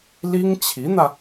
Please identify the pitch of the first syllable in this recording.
high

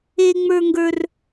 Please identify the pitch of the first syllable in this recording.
high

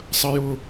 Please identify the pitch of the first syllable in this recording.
high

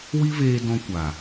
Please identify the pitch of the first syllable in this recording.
high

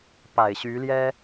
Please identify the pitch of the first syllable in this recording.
low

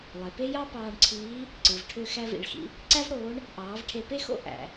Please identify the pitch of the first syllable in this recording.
low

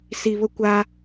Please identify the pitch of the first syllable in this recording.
low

